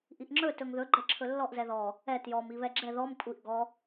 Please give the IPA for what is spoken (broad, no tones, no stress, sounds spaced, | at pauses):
ʔ i ʔ ŋ͡ǁ ɵ t ɵ ŋ ð ɵ ɡ͡ǃ ɛ ǁʰ ɵ lː ɔ ʔ z ɛ ð ɔ | ɛ t j ɔ m i β ɛ ɡ͡ǁ ɛ ð ɔ m kʷʼ i ʔ ɡ ɔ